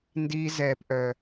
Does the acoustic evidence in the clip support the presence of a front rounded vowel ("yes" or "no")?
yes